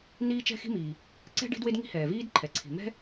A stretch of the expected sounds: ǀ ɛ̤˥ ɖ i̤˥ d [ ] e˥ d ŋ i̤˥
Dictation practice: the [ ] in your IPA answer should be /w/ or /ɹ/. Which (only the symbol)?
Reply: w